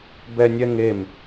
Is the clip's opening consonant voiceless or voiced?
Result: voiced